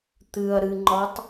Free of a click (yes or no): no